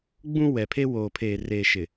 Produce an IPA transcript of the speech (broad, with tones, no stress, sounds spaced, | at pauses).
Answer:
ɡ͡b ũ˦ w ɛ˨ pʰ e˦ w oː˨ pʰ eː˨ r eː˨ ʃ ɪ˨